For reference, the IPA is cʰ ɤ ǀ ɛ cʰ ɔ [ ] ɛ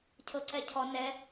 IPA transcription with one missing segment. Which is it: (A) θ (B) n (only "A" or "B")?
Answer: B